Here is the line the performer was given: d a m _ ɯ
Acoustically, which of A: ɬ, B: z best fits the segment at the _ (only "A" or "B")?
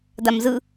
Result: B